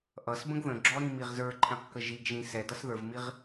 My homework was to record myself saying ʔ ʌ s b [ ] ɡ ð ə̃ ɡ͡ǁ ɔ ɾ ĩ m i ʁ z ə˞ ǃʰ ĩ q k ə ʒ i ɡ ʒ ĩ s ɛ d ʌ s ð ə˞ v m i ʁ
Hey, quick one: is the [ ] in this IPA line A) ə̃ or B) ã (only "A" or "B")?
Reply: A